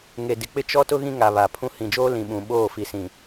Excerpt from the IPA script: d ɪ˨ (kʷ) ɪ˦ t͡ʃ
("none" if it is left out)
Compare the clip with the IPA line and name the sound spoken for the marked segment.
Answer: k͡p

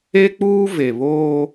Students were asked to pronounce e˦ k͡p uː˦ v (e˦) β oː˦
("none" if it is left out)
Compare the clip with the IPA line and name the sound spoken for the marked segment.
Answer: e˨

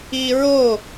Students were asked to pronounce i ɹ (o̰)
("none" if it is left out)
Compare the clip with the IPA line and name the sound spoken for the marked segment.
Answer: o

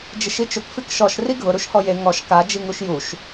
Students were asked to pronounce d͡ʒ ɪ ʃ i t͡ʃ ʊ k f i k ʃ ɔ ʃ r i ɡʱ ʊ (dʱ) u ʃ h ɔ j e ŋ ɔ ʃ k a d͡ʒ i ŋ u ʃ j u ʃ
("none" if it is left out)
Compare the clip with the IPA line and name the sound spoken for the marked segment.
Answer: ɾ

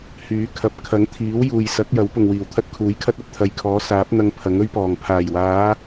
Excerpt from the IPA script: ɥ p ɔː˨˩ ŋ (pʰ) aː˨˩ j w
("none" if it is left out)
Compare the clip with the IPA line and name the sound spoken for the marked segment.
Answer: pʰ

